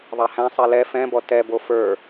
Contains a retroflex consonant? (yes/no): no